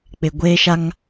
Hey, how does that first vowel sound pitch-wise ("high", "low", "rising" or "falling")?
low